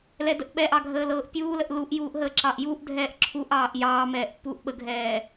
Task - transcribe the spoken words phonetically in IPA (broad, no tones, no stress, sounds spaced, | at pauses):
l ɛ d ə ʔ ɓ ɛ ʔ ɑ ɡʱ əː l ɤː ʔ pʲ uː l ə ʔ l u ʔ j uː ʔ ɦ əː ǁ ɑ ʔ j u ʔ dʱ ɛː ʔ ǁʰ u ʔ ɑː ʔ j ɑː m ɛː ʔ pː uː ʔ ɓ ə ɡʱ ɛː